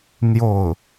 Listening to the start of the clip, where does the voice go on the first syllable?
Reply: falling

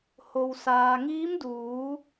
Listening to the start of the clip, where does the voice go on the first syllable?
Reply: low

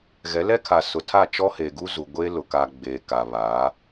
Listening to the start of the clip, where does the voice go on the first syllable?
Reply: rising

